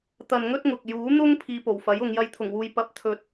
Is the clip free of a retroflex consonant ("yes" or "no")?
yes